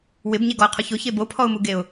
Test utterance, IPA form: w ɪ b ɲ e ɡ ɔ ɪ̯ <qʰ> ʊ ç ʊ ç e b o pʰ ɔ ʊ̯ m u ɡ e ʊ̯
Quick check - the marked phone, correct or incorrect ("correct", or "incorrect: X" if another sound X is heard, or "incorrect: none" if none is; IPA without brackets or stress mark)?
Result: correct